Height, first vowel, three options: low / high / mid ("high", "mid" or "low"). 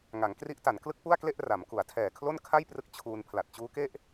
low